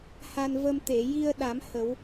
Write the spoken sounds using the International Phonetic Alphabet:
h a˧ n v ə˧ m t̪ e˨˩˨ j i˧ ə̯ ɗ a˨˩˦ m h ə˨˩˦ w

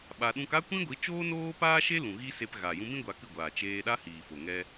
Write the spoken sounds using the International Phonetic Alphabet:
ɓ a˧ ɗ ũ˦ k a˦ kʷ ĩ˦ ɡʷ i˨˦ t͡ʃ oː˦ n oː˦ p aː˦ ʃ e˦ l ũ˨ ɣ i˦ s e˧ p ɣ a˨ j ũ˧ m ĩ˦ ɡʷ a˧ k ɨ˦˨ ɡʷ aː˨ t͡ʃ eː˧ ɗ a˦ h iː˨ f o˨ ŋ ɛ˧

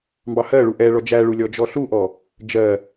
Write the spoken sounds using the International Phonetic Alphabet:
m b ɑ h ɜ ɭ u ʔ ɛ ɭ ɔ d͡ʒ æ ɭ u lʲ ɔ d͡ʒ ɔ ɬ u ʔ ɔ | d͡ʒ ɜ

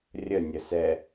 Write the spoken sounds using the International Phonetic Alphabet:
rʲ ə nʲ ə s ɛ

